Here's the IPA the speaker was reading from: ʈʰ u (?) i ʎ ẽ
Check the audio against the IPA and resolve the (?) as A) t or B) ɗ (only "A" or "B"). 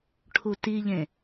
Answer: A